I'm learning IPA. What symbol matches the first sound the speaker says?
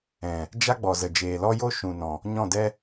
ɛ̃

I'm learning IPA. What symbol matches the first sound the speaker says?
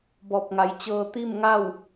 b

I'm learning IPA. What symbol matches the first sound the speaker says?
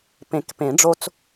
p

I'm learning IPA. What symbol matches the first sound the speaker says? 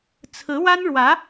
t͡sʰ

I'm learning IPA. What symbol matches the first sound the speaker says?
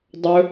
dˤ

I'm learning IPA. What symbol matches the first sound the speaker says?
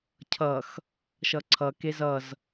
cʰ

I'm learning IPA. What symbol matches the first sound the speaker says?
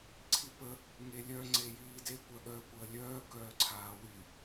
ǀʰ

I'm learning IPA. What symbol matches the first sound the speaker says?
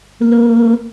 l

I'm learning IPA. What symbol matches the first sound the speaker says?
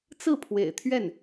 t͡s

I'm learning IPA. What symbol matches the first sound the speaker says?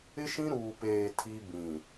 ɪ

